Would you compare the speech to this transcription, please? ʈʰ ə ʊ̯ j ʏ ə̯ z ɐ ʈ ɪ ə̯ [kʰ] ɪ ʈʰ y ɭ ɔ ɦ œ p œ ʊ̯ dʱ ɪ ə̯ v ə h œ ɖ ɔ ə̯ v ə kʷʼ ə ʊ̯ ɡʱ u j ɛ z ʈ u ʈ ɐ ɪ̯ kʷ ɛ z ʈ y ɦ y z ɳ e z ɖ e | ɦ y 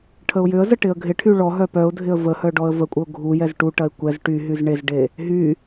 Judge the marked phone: incorrect: ɡʱ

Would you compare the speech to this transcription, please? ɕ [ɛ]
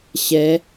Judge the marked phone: correct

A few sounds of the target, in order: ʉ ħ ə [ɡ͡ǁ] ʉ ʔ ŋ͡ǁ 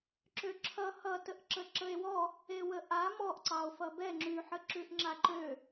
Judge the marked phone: incorrect: ǁ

